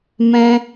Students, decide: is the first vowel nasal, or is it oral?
nasal